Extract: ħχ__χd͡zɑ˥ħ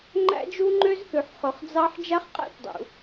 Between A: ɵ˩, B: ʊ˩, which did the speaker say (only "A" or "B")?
A